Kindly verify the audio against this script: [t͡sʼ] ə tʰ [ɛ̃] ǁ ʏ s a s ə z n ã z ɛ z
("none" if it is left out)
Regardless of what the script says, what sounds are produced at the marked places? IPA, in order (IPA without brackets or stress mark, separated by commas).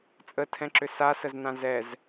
t͡sʼ, ɛ̃